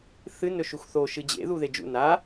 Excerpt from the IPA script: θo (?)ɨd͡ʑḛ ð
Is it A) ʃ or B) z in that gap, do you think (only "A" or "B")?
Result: A